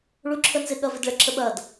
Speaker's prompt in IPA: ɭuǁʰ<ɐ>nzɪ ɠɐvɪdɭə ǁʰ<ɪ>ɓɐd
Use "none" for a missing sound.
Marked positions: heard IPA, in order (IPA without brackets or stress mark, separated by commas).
ə, ə